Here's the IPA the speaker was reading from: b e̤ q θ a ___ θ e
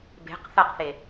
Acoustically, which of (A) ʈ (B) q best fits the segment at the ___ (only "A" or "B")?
B